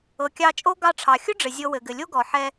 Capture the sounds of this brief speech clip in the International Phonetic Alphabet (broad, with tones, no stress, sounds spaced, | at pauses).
ɤ˩ kʲ ɑ˧ t͡ʃʼ o˥ ɡ ɑ˧ ʈ͡ʂʰ ɑ˩ xʲ ʊ˥ ɖ͡ʐ ɘ˩ zʲ ɤ˧ w ɘ˩ ɡ ɘ˩ lʲ o˥ ɡ ɔ˩ ħ ɛ˧